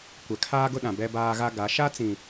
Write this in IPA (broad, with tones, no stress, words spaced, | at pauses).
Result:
kʷɛ˨kʰaː˦ɡʊ˦ɗã˨ bɛ˦baː˦ɣa˦ ɡa˨˦ ʃa˦t͡sĩ˨